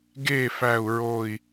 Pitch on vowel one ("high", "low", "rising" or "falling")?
falling